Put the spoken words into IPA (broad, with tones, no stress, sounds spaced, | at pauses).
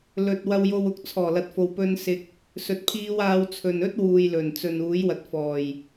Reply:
l ɵ˨ t̚ w ɐ˧ w j o˧ w ʊ˧ k̚ t͡sʰ ɔː˨˩ l ɐ˨ t̚ f o˨ w p ɵ˧ n s ɪ˨˥ k̚ | s ɵ˨ t̚ pʰ iː˧ w aː˧ w t͡sʰ ɵ˨ n ɵ˥ t̚ w uː˨ j l ɵ˨˩ n t͡s ɵ˨ n uː˨˥ j w ɐ˨ t̚ f ɔː˨˩ j